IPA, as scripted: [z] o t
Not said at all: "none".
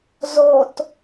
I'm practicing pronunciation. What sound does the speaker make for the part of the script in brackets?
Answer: z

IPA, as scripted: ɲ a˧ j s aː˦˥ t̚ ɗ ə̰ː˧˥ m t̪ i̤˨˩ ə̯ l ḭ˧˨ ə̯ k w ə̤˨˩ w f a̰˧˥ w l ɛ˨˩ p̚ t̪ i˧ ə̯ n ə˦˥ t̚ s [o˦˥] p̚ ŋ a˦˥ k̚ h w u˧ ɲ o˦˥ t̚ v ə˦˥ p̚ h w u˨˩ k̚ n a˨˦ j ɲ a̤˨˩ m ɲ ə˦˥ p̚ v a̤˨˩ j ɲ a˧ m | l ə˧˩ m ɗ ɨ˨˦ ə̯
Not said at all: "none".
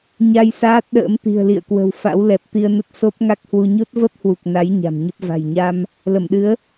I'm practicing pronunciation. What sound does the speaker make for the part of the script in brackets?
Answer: o˦˥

